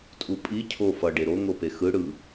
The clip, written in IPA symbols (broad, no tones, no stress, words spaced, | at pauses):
tʼupʼi cʰo fʌ ɖeɾo ŋopexɯ ɽɯ